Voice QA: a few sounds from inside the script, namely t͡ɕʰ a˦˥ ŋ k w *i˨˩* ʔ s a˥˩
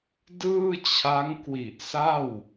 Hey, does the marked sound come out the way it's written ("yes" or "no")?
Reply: yes